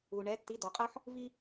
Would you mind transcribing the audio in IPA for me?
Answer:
u˩ ɳ ɛ˩˥ tː i˩˥ d ɔ˩ qʼ ɤ˦ ħ | v i˦

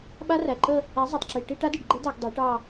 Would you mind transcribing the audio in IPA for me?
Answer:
ɓ a˦˥ r æ˨˩ ǃ ə˥˧ | æ˨˥ zˤ ɛ˨˩ tˤ ǁ i˨˩ ʈ i˥˧ ʈ a˦˥ d i˨˩ ɖ ɡ͡ǃ ɛ˦˥ d a˧˩˧ ɡ dˤ e˨˥ ʈ ɑ˥˧

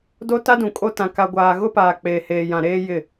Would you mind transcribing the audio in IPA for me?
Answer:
d o˦ t a˦ d ũ˨ kʼ o˦ t ã˨ k a˨ ɡʷ aː˨ ɣ ʊ˦ p aː˨ k͡p eː˨ h eː˨ j ã˨ ɾ eː˦ j ɪ˦˨

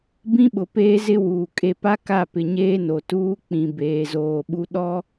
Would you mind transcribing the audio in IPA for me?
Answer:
b ĩ˦ ɓ ʊ˨ p eː˦ z ɪ˦ w uː˨ kʼ e˨ p a˦ k a˦˨ p ɪ˨ ɲ eː˦ n o˨ t uː˦ k͡p ĩ˨ b eː˨ z oː˨ ɓ u˦ ɗ ɔ˦

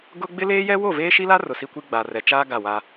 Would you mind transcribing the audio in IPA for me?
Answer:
ɡ ʊ˦ ɡ͡b ɪ˦ l eː˦ j ɛ˦ w o˦˨ v eː˦ ʃ i˦ l a˦ r ʊ˨ s i˦ kʷ i˦ ɡ͡b a˨ r ɛ˨ t͡ʃ aː˦ ɡ a˦˨ w a˦

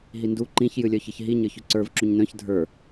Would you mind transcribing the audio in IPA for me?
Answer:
ɦ i n d u ǃ ĩ ç j ɨ lʲ œ ç ɨ ç ɦ i ɲ ə˞ ç ʉ ǀ ə˞ v ǁ u ɲ n œ̃ ç dʱ ə˞

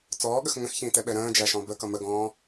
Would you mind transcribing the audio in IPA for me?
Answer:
t͡s ɔː ɠ ə x ŋ ə̃ x ç ĩː t ɛ ɓ ɛ ɾ ə̃ː d͡ʒ æ ʃ ɔ̃ b ə k ʌ m ə ɡ ɔ̃ː

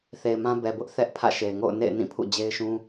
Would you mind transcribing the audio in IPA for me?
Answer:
θ e˨ ɪ̯ m ã˦ b ɛ˨ b ʊ˦ ʔ θ ɛ˦ ʔ pʰ ä̰˦˨ ʃ e˨ ɪ̯ ŋ o̰˦˨ ʊ̯ n ḛ˦˨ ɪ̯ n ĩ˦˨ pʰ ṵ˦˨ d͡ʑ e˦ ɪ̯ ʃ ũ˦

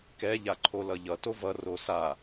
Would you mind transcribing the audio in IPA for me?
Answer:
k ɛ ʎ a ǃʰ o l ʌ ʎ ʌ t o v ʌ r o s a

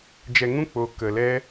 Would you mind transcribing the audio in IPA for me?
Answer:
d͡ʒ ɛ˧ ŋ ũ˦ k͡p o˦ k ə˧ l ɛ˦

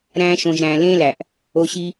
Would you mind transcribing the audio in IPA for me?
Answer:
ɾ æ̃˧ ʃ õ˨ ʒ ɾ æ̃˨ l ẽ˦ l æ˨ ʔ | o˧ ɕ i˧

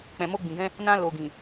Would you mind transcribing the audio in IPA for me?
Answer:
k͡p ɛ̃˨ m o˧ ɡ͡b ĩ˨ ɡ ɛ̃˧ | n ã˧ l o˨ ɡ ĩ˨

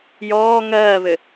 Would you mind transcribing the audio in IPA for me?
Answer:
j ɔː ŋ ɜː β ɘ

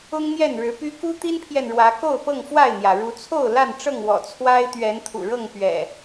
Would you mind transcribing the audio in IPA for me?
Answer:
ʊ˦ ŋ n̪ j ɛ˥˨ n ɻ ɻ̩˨˦ p y˦ k u˦ t̪ i˦ n pʰ j ɛ˨ n ɻ w ä˨˦ k o˥˨ ʊ̯ p ɤ˥˨ ŋ f w a˥˨ ɪ̯ n̪ j ä˩ ɻ u˨˦ t͡sʰ o˥˨ ʊ̯ l a˥˨ n ʈ͡ʂ ɤ˥˨ ŋ w ɔ̰˨˩ t͡sʰ w a˦ ɪ̯ t̪ ɥ ɛ˨˦ n t̪ʰ ṵ˨˩ ɻ ɤ˥˨ ŋ p ɥ ɛ̰˨˩

